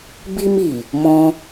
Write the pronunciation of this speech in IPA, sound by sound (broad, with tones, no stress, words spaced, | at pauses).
bi˦mi˨˩ | mɔ̃˧